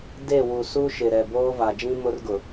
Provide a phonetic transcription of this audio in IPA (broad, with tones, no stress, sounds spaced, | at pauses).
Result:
d e˦˨ w u˨ s u˦ ʃ ɪ˨ ɾ ɛ˨ b oː˦ v a˨ d͡ʒ ĩ˦ m ʊ˦ r ɡ ʊ˨